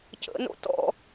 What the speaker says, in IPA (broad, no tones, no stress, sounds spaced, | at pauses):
c ə̰ n o̰ t ɔ̰